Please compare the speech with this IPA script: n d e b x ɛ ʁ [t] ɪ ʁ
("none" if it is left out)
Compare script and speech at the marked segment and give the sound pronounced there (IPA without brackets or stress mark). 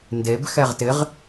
t